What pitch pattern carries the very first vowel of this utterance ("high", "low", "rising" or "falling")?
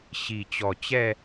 low